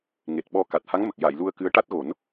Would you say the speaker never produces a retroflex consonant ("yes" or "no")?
no